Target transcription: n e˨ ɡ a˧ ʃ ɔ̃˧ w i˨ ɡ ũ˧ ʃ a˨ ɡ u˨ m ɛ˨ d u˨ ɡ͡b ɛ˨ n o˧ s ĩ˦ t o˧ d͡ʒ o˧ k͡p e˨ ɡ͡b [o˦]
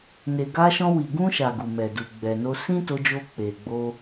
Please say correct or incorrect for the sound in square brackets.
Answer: incorrect: o˧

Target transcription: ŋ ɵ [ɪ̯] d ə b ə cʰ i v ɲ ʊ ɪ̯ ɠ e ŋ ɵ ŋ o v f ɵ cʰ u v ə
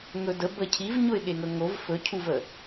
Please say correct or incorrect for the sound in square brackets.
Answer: incorrect: none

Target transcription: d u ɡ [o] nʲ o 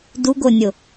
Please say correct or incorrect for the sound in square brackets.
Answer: correct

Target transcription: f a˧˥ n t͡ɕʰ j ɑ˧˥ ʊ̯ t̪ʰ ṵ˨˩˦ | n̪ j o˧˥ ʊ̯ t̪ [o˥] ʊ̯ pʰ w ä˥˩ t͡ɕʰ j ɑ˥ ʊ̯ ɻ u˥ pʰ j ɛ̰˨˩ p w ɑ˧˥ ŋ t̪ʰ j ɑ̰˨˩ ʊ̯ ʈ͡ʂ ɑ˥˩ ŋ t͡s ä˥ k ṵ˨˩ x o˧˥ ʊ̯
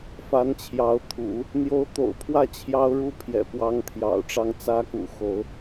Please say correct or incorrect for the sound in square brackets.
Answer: incorrect: o̰˨˩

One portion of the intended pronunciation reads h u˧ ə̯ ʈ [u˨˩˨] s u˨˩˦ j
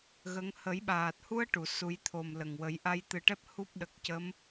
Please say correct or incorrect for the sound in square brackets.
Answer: correct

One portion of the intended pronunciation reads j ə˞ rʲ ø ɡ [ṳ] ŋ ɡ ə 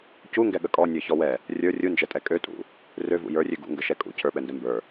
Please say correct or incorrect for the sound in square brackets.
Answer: incorrect: ṵ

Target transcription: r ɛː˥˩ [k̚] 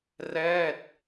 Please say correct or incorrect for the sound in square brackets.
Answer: incorrect: t̚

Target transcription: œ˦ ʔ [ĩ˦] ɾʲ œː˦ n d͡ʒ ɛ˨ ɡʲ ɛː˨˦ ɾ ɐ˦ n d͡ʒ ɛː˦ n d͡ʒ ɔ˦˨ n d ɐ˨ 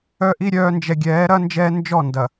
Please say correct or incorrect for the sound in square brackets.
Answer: incorrect: i˦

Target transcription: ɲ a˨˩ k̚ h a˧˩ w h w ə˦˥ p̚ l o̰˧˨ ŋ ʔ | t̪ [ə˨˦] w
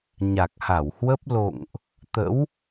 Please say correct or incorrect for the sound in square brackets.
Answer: incorrect: ə̰˧˥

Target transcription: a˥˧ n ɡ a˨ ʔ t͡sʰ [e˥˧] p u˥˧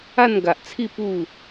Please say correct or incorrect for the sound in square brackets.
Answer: incorrect: i˥˧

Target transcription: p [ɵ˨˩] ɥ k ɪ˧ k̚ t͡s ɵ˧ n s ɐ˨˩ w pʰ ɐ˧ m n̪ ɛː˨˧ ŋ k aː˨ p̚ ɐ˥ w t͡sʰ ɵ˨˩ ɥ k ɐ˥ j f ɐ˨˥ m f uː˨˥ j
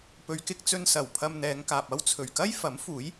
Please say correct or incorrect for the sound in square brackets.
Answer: incorrect: ɵ˨˧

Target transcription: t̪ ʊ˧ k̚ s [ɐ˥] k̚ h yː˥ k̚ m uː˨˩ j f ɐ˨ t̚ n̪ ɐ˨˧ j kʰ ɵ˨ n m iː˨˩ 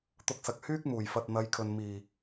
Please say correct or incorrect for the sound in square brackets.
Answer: incorrect: ɐ˨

